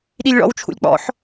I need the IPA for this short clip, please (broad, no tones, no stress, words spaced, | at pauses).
ɗilʲɭɔ̰w t͡ʃʰṵlʲk͡pɔ̰ħ